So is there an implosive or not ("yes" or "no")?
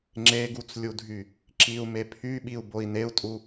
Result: yes